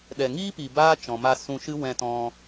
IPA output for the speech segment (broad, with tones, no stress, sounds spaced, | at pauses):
ɗ ɛ˨ ŋ iː˦ p i˨ b aː˦ t͡ʃ ɔ̃˨ m a˧ s ũ˧ ʃ ɨ˦ w ɛ̃˧ t ɔ̃˧